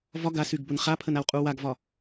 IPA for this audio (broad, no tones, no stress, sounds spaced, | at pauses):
v ɒ ɡ a s y ɡ b ʊ n χ a pʰ ə n a w qʼ u w a ɡ v ɒ